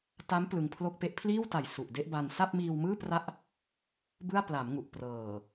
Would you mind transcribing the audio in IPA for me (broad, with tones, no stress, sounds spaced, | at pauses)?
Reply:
t a˦˥ m p l ɯ˧ ŋ pʰ l o˥˩ k̚ p e˥˩ ʔ pʰ l iː˥˩ w t a˨˩ j s u˨˩ ʔ d e˥˩ ʔ b a˧ n s a˥˩ p̚ m iː˧ w m ɯː˥˩ p r a˥˩ ʔ | b ɯ˥˩ a̯ p l a˩˦ m ŋ u˨˩ ʔ p r ɤː˨˩